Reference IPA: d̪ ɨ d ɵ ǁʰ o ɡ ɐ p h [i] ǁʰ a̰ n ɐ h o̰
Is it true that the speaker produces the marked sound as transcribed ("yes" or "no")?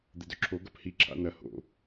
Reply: yes